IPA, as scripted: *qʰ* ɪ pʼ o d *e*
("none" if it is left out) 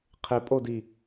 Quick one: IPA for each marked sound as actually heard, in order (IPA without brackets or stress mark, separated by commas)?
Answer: qʰ, i